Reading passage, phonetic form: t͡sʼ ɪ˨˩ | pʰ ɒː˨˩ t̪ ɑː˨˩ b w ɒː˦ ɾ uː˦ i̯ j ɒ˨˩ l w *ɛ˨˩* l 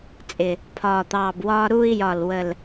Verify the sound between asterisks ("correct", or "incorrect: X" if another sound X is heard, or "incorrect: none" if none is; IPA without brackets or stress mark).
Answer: incorrect: ə˨˩